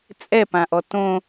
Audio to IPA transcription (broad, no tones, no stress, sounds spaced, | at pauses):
t͡sʼ ɛ p ã ʔ ɔ t õ